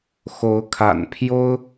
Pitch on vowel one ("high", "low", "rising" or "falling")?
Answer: rising